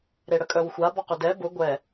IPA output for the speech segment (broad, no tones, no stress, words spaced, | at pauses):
ɾeɽəkʼœwxʷa bɔqʏdɛ bʊ ɡʷɛ